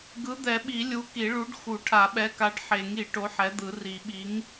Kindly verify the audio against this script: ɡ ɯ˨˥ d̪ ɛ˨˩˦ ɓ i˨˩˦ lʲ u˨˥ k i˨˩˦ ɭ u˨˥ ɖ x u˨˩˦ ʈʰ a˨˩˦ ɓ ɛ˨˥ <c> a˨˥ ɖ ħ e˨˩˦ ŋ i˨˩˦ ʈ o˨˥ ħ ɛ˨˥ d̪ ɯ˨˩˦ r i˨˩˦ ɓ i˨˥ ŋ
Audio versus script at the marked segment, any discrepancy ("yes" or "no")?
yes